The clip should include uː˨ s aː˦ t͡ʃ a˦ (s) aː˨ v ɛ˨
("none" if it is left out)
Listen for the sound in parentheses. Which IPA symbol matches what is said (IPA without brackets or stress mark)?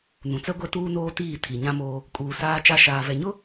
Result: ʃ